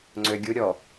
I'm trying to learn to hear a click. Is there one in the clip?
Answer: yes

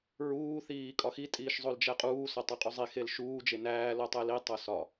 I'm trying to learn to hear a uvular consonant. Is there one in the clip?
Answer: yes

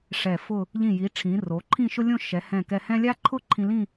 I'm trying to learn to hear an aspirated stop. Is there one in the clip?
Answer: yes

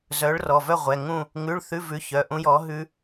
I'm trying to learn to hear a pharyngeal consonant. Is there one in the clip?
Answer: no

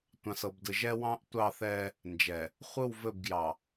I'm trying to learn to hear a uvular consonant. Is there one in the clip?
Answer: yes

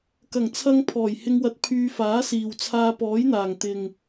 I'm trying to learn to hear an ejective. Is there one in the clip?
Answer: no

